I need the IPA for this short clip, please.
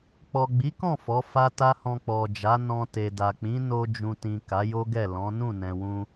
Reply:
k͡p ɔ˨ ɡ͡b i˨˦ k ɔ̃˦˨ f ɔ˨˦ f a˦ t a˦ h ɔ̃˧ k͡p ɔ˨ d͡ʒ a˨˦ n ɔ̃˧ t e˨ d a˨ k͡p ĩ˨˦ n o˧ d͡ʒ ũ˨ t ĩ˨ k a˨˦ j o˦ ɡ ɛ˦˨ l ɔ̃˨˦ n ũ˦˨ n ɛ̃˨ w ũ˧

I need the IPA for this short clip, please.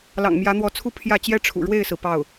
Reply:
l ɑ̰˨˩ ŋ m j ä˧˥ n̪ w ɔ˧˥ t͡sʰ u˥˧ pʰ j ä˥˩ t͡ɕ j ɛ˥ ʈ͡ʂʰ ṵ˨˩ ɻ w e˥˩ ɪ̯ s ɹ̩˩ p ɑ˥˩ ʊ̯

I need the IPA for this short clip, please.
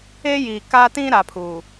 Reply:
e˦ j i˨ k a˦ t ĩ˦ ɾ a˨˦ pʰ u˨

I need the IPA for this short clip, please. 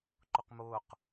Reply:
ǃ ʊ q m ʊː q

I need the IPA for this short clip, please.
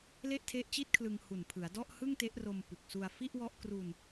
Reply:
l e˥˩ ʔ tʰ e˦˥ ʔ t͡ɕ i˥˩ t̚ kʰ l ɯ˧ ŋ h u˨˩ n pʰ ɯ˩˦ a̯ d ɔ˥˩ ʔ h ɯ˥˩ ŋ t e˦˥ ʔ r o˧ m p u˨˩ k̚ s u˧ a̯ f i˥˩ ʔ w ɔ˦˥ ʔ k r u˧ n

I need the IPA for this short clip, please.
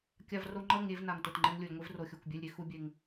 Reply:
kʲ a˧ v r o˧ ŋ͡ǃ ʌ˦˨ ŋ ɾʲ e˧ v n a˨ ŋ t o˨ t ŋ͡ǃ ɛ˧ ŋ lʲ o˨ lʲ ŋʷ i˧ v r o˨ xʲ o˨ kʷ bʲ ɛ˧ lʲ ɾʲ e˧ x u˦ bʲ e˧ ŋ

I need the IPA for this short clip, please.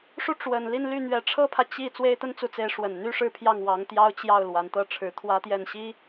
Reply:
ʂ u˥˩ ʈ͡ʂ w ə˨˩ n l i˥˧ n l y˥˩ n̪ ɥ ɛ˧˥ ʈ͡ʂʰ ɤ˥ pʰ ä˨ t͡ɕ i˥˩ t͡s w e˥ ɪ̯ t̪ ə˥ n t͡s u˧˥ t͡s e˧˥ ɪ̯ ʂ w ə˨˩ n n̪ y˥ ʂ ɻ̩˥˧ pʰ j ɑ˥˩ ŋ w ɑ˧˥ ŋ t̪ j ɑ˥ ʊ̯ t͡ɕ j ɑ˥˩ ʊ̯ l w a˧˥ n t̪ ɤ˥˩ ʈ͡ʂʰ ɻ̩˧˥ t̪ʰ w ä˥ t̪ j ɛ˥˩ n ɕ i˥

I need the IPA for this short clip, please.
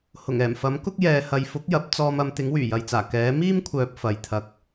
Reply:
h ʊ˨˩ ŋ ɛː˨˩ m f ɐ˨˥ m k ʊ˥ k̚ j ɛː˨ h ɐ˨ j f ʊ˨˥ k̚ j ɐ˨˥ p̚ t͡s ɔː˧ m ɐ˨˧ m t̪ ɪ˨˥ ŋ w yː˨˩ j ɐ˨ j t͡s aː˨˩ k ɛː˨˥ m iː˥ m kʷʰ œː˨ p̚ f ɐ˨ j t̪ʰ ɐ˧ k̚

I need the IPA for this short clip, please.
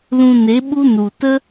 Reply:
l ũ˧ n e˨˦ ɓ u˦ n u˨ t ə˦

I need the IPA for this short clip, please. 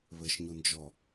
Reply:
β ɘ ʃ ɲ u n d͡ʒ ɔ

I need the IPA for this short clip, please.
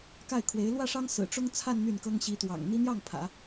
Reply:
k a˥˩ ɪ̯ kʰ w e˧˥ ɪ̯ l w ä˥˩ ʂ ɑ˥ ŋ s ɹ̩˨˩ ʈ͡ʂ ʊ˥ ŋ t͡sʰ a˥˧ n n̪ y˥˩ n k ɤ˥ ŋ ɕ i˧˥ t̪ w ɑ̰˨˩ ŋ n̪ i˥ n̪ j ɑ˥˩ ŋ pʰ ä̰˨˩˦

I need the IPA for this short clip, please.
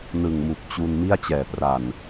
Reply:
n ɯ˨˩ ŋ m u˨˩ k̚ t͡ɕ u˧ n m i˥˩ a̯ t͡ɕ ɛː˨˩ p r a˨˩ n

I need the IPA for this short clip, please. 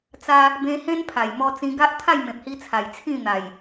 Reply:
t͡s a˦ | b ẽ˧ h ẽ˦ n pʰ a˨˩ j m ɔ˧ t͡s ĩ˧ ɡ a˦ ʔ t̪ʰ a˥˧ j m ẽ˨ p̚ h i˧ t͡sʰ a˨˩ j t͡sʰ ĩ˥˧ n̪ a˨˩ j

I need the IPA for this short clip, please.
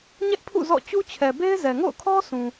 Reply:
ɲ ɛ˦ ʔ pʰ ṵ˦˨ z ɔ̰˦˨ t͡ɕ u˦ t͡ɕʰ ɛ˨ b e˦ ɪ̯ z ɛ˨ ŋ o̰˦˨ ʊ̯ kʰ ɔ˦ s ũ˨

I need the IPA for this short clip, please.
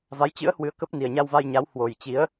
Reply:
v a˨˦ j t͡ɕ ɨ̰˧˥ ə̯ h w ɨ˨˦ ə̯ k ə˦˥ p̚ n i˨˩ ə̯ ɲ a˧ w v a˧ j ɲ a˨˦ w h w o˨˩ j t͡ɕ i˨˦ ə̯

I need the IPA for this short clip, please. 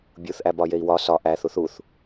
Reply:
bʲ u θ ʔ æ b ɒ j e i̯ w ɒ s ɒ ʔ æ θ u θ u θ

